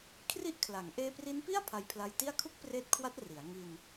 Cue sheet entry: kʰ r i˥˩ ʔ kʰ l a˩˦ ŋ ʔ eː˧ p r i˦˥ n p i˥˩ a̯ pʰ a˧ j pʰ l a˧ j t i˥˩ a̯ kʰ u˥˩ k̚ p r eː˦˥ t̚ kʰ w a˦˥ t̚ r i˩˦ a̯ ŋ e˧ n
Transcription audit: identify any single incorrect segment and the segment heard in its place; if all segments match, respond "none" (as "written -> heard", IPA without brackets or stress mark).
e˧ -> i˧